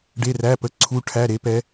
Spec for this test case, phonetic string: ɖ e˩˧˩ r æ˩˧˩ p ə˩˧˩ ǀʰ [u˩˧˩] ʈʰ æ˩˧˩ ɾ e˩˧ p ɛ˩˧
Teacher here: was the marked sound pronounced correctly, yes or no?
yes